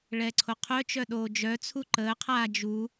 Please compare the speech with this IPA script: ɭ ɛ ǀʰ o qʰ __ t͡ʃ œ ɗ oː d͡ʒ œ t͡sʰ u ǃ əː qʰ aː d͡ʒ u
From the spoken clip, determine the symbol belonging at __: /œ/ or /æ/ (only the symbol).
œ